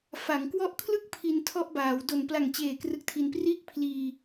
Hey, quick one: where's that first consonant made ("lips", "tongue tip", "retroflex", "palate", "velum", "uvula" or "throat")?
lips